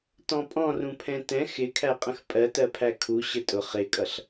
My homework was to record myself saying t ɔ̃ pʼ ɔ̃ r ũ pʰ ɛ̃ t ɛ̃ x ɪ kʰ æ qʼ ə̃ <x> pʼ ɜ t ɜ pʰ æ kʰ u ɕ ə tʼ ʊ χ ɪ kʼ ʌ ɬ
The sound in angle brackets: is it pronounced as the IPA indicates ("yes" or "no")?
yes